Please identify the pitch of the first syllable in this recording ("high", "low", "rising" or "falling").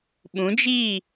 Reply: rising